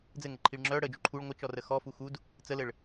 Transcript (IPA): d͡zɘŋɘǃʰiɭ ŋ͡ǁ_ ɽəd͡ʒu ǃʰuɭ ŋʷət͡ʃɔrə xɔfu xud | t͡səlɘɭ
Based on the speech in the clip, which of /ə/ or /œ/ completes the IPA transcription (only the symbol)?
œ